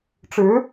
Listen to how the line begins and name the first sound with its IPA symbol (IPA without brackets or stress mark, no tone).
ʈ͡ʂ